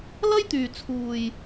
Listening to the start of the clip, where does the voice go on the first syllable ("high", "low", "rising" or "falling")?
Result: high